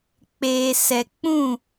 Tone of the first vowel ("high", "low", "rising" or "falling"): low